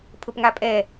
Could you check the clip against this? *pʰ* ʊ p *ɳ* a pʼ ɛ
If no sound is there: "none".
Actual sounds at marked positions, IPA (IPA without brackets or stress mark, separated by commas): pʰ, ŋ